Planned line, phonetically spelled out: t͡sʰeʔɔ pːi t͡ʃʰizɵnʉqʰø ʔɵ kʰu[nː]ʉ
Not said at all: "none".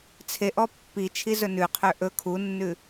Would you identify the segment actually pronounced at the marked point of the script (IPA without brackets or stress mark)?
nː